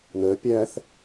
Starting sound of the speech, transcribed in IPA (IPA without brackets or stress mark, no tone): n